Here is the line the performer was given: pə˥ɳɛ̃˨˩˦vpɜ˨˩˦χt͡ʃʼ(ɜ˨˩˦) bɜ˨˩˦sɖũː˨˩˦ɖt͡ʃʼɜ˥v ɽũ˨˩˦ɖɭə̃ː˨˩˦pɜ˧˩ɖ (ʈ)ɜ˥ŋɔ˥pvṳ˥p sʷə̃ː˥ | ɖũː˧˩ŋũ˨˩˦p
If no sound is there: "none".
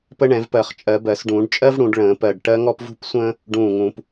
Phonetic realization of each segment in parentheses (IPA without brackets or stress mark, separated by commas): ɜ˨˩˦, ʈ